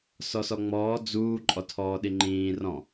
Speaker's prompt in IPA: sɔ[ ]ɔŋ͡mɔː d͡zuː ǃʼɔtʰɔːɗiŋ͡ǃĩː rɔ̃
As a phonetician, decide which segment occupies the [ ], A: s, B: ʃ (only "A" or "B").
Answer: A